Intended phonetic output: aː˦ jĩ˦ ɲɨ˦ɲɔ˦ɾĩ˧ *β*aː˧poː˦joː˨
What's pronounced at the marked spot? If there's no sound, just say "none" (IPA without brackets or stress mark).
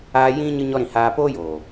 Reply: h